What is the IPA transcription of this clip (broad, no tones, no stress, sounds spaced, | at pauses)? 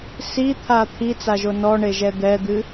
s i t̪ʰ a t̪ʰ i t͡s a ʒ o n ɔ ɳ e ʒ ɛ d̪ ɛ d̪ ɨ